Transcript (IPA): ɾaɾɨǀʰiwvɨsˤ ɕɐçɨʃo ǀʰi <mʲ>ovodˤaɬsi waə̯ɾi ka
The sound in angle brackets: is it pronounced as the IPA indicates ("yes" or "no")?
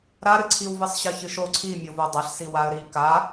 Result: yes